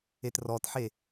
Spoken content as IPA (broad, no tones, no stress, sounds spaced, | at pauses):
e t r ɔ t ħ e